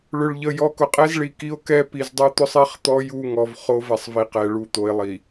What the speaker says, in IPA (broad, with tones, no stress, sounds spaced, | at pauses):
ɭ ʏ˨ ɭ ʎ ə˨ j ɔ˨ k ʊ˨ qʼ ɛ˦ z ɭ i˨ k i˦ o̯ k ɛ˦ p i˨ z dˤ u˦ t̪ ʊ˦ sˤ i˦ χ t̪ ɔ˦ j u˦˨ ŋ ɔ˨ v χ o˦ v ɛ˨ sˤ v i˨ q ɛ˨ ɭ u˦˨ t̪ o˨ e̯ lˠ i˨